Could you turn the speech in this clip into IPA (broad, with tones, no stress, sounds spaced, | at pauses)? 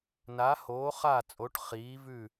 n a˨˥ h oː˨˥ χ aː˥˨ t͡sʼ o˨˥ ʈ χ iː˨˥ v ʉ˥˨